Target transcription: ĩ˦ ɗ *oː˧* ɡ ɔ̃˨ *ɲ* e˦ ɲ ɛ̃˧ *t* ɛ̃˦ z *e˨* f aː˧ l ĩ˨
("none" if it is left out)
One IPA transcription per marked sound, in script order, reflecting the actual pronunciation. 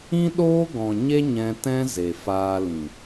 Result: oː˦, ɲ, t, e˨

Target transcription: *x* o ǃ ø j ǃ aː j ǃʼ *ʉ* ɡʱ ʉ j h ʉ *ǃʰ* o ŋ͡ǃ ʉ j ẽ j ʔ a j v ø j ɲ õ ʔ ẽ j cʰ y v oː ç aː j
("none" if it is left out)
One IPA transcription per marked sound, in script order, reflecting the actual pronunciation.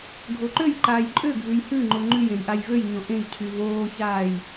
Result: ɡʱ, ø, ŋ͡ǃ

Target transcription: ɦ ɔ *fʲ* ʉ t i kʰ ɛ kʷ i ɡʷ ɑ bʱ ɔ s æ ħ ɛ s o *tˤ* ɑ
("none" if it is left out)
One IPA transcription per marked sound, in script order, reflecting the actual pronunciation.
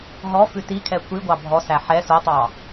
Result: f, tˤ

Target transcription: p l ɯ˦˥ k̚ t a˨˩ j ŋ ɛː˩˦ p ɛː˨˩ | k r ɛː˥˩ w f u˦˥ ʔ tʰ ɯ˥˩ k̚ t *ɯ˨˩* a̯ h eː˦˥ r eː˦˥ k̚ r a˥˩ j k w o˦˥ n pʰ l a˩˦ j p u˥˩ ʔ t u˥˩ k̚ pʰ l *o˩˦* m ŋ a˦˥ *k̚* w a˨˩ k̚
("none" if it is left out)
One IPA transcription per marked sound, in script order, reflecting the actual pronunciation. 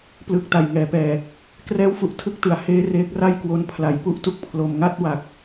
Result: ɯ˨˩, o˧, t̚

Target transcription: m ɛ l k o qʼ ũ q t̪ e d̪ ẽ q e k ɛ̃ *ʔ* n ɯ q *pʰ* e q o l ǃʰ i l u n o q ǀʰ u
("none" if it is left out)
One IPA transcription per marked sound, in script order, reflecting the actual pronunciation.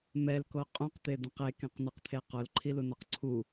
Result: q, t̪ʰ

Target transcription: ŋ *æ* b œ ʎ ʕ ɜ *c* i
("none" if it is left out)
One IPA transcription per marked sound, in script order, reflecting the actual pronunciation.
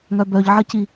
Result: œ, c

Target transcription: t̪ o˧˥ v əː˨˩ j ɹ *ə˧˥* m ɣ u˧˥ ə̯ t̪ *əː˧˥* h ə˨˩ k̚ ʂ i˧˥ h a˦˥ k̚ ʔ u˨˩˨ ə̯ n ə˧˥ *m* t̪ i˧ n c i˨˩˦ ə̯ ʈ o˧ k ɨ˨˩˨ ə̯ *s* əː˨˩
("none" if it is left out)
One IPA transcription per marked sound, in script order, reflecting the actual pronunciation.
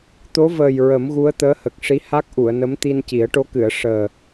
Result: ə˨˩˦, əː˧˥, m, ʂ

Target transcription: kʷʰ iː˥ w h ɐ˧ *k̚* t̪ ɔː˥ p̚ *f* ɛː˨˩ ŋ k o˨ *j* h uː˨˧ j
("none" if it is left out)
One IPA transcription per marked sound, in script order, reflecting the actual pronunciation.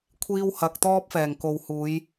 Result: k̚, f, w

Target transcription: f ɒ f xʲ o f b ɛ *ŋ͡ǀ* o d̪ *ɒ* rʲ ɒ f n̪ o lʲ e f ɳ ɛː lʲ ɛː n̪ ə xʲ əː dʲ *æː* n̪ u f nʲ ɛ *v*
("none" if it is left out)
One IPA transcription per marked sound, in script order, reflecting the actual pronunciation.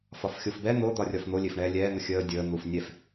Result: n̪, ɒ, əː, f

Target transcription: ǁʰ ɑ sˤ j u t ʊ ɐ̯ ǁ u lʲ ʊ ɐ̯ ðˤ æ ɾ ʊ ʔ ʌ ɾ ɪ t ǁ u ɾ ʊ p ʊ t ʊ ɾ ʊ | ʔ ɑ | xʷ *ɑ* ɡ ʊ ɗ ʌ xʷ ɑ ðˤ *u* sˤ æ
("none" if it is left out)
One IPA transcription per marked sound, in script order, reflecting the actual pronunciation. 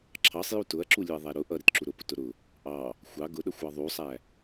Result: ɑ, u

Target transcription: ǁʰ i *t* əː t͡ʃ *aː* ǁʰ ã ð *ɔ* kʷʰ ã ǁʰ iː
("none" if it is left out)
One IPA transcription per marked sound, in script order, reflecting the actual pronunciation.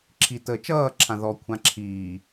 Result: t, ʌː, ɔ

